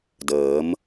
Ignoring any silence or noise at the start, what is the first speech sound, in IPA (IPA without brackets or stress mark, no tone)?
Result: d